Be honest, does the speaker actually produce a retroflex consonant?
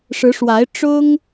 yes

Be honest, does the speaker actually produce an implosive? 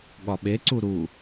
yes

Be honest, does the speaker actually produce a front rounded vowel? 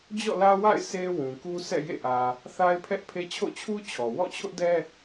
no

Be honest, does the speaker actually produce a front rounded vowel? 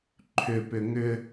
yes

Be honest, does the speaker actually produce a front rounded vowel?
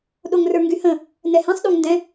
yes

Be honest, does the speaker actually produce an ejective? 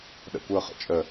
yes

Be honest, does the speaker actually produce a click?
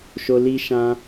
no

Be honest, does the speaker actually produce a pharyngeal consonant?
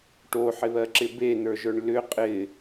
yes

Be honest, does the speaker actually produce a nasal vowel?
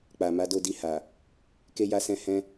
yes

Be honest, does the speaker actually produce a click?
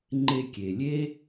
yes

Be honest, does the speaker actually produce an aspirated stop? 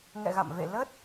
no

